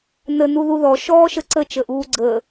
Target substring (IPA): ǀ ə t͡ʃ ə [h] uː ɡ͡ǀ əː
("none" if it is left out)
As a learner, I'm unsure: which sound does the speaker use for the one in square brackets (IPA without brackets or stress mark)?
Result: ʔ